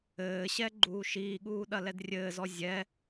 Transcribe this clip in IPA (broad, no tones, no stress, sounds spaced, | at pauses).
ɘː ɕ ɛ ɡ͡ǃ uː ʃ iː ɠ uː ɗ ɐ l ɛ d rʲ ɘː z ɔ zʲ ɛ